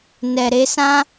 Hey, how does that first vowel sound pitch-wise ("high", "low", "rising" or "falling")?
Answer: low